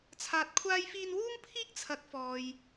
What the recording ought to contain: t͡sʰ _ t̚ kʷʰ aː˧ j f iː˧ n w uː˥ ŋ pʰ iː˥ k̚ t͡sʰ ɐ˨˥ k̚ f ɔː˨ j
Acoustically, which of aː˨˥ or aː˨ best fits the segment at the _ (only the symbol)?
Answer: aː˨